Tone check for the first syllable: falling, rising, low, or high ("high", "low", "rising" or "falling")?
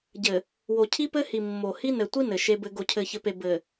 low